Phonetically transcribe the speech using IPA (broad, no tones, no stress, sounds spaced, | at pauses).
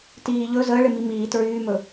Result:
t iː ʎ ɵ z əː ɭ ɪ m i m iː t ɹ yː m ɵ